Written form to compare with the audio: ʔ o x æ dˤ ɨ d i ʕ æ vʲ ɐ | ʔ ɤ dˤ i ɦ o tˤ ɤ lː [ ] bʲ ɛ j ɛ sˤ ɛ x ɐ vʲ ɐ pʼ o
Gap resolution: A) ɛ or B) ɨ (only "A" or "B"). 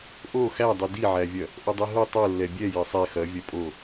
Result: A